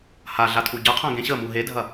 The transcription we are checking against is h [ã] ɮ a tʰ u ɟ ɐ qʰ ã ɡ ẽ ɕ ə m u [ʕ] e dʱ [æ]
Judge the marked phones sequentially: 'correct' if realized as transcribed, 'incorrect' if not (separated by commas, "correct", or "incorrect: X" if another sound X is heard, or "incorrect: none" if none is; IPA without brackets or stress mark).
incorrect: a, incorrect: ɦ, incorrect: ɐ